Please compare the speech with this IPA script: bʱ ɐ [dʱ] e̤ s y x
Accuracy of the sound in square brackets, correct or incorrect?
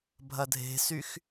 correct